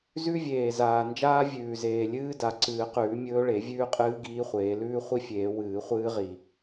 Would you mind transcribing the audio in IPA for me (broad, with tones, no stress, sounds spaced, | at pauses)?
z ʉ˦˥ vʲ eː˨˩ z aː˨˩ n d͡ʒ aː˦˥ vʲ ʉː˨˩ z eː˨˩ lʲ ɨː˦˥ d a˨˩˦ ǀ ɨː˨˩˦ q ʉː˨˩˦ mʲ ɵː˦˥ ɭ e˨˩˦ vʲ ʉː˦˥ qʼ ɨː˦˥ ɡ iː˦˥ χʷ eː˨˩˦ l ʉː˦˥ χʷ i˦˥ fʲ eː˨˩˦ w ɨː˨˩˦ χʷ ɨː˦˥ ʁ i˨˩